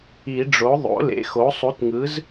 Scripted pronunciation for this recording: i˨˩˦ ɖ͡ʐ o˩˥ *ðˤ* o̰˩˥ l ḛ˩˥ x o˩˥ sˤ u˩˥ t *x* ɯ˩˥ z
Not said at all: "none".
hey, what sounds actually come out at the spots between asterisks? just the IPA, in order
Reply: ðˤ, ŋ

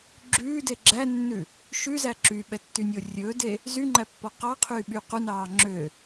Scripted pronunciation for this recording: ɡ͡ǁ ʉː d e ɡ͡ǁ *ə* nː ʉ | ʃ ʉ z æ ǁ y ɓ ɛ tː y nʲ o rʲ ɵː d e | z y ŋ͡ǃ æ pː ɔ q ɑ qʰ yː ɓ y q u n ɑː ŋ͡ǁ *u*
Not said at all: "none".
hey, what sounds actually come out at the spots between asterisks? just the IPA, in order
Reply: æ, ø

